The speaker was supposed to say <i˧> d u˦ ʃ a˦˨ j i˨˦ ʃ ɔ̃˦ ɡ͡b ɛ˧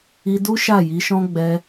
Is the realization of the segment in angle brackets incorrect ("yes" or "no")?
no